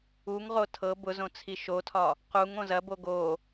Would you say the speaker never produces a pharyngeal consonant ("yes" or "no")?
yes